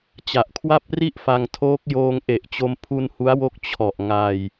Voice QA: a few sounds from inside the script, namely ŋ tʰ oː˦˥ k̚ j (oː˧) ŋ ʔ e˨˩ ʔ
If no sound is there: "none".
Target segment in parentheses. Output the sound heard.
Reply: oː˧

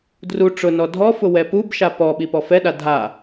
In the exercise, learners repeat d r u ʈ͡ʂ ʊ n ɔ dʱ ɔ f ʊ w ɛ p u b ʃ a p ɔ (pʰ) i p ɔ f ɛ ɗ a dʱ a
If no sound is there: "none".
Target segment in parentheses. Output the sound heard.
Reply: ɓ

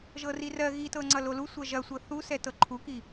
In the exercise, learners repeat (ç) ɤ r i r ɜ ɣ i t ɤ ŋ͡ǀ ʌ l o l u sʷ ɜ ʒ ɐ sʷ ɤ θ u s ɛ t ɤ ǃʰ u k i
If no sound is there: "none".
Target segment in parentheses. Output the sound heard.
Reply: ʒ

